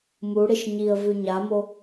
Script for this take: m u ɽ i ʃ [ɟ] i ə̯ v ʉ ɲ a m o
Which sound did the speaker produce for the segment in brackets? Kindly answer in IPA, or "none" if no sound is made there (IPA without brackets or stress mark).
ɲ